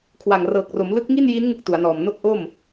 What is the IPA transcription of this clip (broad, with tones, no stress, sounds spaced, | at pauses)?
kʰ w a˨˩ ŋ r ɤː˨˩ k̚ r o˩˦ m l ɯ˦˥ k̚ ŋ i˥˩ n j i˦˥ n ŋ ɯ˥˩ k̚ t u˩˦ a̯ n ɔː˨˩ m n o˥˩ k̚ ʔ o˥˩ m